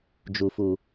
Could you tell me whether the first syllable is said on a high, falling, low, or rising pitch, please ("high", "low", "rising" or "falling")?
low